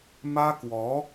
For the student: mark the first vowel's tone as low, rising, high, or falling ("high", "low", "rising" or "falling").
high